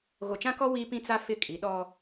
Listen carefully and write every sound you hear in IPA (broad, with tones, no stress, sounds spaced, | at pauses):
ɣ o˨ t͡ʃ ã˦ k ɔ˦ w i˦ p ĩ˦ t͡s a˦ f ɪ˦˨ kʼ i˨˦ ɗ ɔ˦